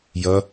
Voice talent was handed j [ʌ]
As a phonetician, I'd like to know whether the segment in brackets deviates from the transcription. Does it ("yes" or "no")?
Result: no